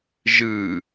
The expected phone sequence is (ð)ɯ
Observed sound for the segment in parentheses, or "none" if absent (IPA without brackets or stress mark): ʒ